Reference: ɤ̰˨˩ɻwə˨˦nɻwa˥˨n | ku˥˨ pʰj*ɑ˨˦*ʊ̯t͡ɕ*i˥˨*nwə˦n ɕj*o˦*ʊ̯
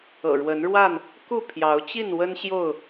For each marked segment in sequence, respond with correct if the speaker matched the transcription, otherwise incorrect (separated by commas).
correct, correct, incorrect